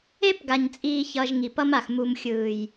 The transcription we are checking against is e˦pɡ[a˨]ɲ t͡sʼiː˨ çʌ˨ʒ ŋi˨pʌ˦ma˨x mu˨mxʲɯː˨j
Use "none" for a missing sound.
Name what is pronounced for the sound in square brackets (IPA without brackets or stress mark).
a˨